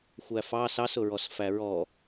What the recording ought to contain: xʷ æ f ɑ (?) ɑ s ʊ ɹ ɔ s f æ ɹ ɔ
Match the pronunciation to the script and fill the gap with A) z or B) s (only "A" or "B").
B